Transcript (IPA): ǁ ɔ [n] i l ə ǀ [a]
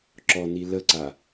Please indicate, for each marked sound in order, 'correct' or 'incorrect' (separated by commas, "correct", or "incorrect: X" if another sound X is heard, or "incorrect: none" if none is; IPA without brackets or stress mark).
correct, correct